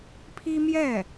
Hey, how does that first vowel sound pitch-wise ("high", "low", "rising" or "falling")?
high